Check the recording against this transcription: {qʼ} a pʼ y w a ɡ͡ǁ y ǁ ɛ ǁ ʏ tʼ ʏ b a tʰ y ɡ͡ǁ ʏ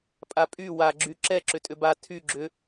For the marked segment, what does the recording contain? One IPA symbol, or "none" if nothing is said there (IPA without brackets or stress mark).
pʼ